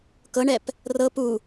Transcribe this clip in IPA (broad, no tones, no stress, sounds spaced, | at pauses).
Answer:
k ɤ ɳ ɛ p | r ɤ p u